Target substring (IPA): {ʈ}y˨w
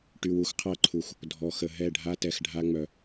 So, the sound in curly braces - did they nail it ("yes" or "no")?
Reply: yes